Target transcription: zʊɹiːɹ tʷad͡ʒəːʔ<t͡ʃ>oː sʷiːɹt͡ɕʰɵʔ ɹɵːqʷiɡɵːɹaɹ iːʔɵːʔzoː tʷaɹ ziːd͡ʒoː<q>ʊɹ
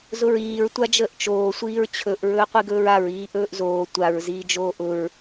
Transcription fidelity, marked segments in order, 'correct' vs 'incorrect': correct, incorrect: ʔ

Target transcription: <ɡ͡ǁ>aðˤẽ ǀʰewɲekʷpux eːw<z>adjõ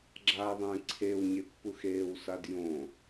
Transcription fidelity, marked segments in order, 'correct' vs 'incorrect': correct, incorrect: s

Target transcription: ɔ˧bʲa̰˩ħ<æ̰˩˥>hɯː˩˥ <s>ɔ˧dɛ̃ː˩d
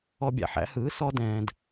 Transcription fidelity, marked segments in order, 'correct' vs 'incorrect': correct, correct

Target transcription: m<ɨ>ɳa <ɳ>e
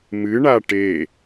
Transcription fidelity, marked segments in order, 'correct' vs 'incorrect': correct, incorrect: ʈ

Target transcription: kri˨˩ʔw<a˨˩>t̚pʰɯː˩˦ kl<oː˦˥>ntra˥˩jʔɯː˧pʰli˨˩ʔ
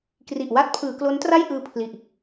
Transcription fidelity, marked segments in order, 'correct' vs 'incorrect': incorrect: a˦˥, incorrect: o˦˥

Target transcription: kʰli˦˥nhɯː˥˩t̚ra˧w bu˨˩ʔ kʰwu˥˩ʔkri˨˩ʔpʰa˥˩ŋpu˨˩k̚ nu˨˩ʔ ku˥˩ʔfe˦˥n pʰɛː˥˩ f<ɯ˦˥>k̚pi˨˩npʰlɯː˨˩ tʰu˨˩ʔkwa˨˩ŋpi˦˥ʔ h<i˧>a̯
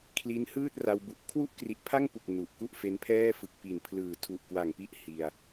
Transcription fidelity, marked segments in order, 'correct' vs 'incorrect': incorrect: ɯ˨˩, correct

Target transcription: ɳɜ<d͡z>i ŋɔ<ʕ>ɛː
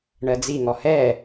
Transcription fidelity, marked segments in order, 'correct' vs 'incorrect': correct, incorrect: h

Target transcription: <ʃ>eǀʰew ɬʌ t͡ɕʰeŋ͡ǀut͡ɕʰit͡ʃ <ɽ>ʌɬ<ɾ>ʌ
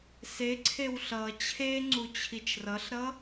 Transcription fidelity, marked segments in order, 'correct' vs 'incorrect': incorrect: s, incorrect: r, correct

